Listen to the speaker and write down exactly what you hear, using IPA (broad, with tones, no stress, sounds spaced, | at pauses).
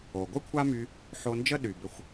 o˨ ɡʷ ɯ˦ kʷʰ a˦ m y˧ | ħ o˧ n d͡ʒ ə˦ ɗ y˨ b ʏ˧ xʷ